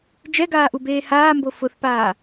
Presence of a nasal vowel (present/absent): absent